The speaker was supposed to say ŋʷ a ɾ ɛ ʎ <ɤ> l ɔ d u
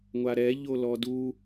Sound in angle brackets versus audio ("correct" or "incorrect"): incorrect